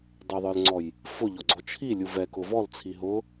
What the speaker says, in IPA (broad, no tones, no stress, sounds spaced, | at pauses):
dˤ ʊ ðˤ ə˞ l ŋ͡ǀ ɔ j | f ʊ ʎ ɔ ɡ͡ǀ ɔ t͡ʃʰ i lʲ u v ɛ k ʊ v ɔ l t͡sʰ i ɦ ʊ